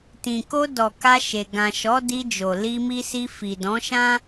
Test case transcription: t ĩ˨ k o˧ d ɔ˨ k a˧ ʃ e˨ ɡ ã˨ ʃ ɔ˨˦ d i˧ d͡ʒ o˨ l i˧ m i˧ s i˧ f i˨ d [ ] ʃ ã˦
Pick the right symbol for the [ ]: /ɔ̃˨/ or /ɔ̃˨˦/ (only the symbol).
ɔ̃˨˦